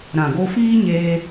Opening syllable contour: low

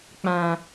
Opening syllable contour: low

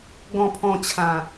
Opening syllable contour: low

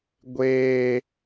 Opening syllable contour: high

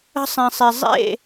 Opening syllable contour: high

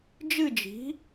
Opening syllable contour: falling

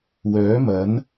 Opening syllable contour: rising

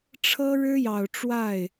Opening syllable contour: high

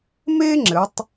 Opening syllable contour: high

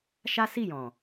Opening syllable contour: high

